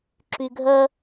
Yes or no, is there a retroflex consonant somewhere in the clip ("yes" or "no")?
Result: no